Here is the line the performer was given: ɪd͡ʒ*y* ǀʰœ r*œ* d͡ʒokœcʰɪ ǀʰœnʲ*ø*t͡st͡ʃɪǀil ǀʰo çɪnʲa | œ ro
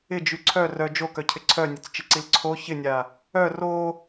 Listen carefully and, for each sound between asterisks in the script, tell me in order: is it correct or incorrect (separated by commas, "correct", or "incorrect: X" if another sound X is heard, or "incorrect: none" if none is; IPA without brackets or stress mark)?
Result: correct, correct, incorrect: œ